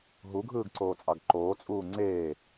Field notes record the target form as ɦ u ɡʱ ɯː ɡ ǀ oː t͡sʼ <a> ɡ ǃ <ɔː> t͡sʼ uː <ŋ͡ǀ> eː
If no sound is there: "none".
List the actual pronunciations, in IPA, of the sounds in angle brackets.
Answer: ɑ, oː, ŋ͡ǀ

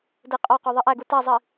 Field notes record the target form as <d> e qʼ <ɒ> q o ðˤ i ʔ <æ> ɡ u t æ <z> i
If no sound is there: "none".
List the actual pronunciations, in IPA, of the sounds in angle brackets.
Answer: d, ɒ, æ, zˤ

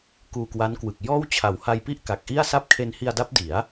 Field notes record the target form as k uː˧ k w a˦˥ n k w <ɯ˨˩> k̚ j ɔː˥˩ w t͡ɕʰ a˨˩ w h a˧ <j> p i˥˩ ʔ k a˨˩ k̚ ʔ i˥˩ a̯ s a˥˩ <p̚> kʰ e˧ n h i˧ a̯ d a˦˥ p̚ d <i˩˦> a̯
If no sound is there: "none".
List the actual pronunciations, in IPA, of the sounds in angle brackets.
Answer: ɯ˨˩, j, p̚, i˩˦

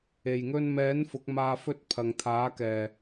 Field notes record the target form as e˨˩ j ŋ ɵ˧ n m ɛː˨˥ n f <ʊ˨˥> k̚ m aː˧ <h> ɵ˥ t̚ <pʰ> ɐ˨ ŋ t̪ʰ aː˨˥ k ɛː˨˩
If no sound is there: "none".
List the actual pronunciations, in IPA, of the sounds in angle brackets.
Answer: ʊ˨˥, f, pʰ

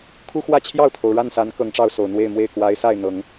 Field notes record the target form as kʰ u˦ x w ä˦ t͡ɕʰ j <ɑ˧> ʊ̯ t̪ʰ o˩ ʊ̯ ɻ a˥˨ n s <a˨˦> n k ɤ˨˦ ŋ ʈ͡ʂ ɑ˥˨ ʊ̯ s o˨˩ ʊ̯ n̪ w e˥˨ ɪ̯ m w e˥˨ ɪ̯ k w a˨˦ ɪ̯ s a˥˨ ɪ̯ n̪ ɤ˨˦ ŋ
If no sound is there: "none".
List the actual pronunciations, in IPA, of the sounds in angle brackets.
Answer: ɑ˥˨, a˨˦

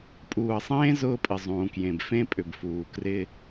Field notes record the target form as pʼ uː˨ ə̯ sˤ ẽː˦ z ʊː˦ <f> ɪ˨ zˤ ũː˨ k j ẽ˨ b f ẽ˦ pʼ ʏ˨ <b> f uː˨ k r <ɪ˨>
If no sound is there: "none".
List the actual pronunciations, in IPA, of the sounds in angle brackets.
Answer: pʼ, b, ɪ˦

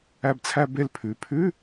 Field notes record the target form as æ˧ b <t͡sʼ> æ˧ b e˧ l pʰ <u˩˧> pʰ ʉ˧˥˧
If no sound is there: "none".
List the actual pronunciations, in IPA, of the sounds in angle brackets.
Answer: t͡sʰ, ʉ˩˧

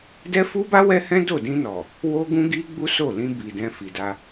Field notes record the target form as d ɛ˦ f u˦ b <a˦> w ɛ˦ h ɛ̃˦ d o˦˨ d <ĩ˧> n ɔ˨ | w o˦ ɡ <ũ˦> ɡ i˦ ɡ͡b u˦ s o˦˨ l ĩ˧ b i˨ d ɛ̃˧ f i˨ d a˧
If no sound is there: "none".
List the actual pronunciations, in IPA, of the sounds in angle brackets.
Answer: a˦, ĩ˧, ũ˦

